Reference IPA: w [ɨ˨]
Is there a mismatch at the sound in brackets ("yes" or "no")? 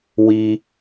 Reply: yes